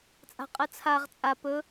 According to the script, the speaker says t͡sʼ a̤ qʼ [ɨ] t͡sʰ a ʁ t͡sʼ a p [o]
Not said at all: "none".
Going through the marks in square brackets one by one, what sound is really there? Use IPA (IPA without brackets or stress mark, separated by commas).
ɨ, ɵ